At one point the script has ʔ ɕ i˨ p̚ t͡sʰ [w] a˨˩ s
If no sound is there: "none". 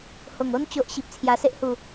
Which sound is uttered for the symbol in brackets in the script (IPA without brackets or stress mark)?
j